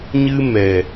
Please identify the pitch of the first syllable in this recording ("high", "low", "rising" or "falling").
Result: high